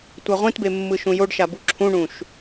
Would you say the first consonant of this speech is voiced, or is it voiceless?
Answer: voiceless